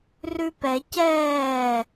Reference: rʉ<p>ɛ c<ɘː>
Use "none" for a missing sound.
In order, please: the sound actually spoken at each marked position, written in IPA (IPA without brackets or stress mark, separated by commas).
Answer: p, ɛː